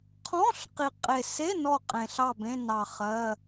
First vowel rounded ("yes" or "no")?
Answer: yes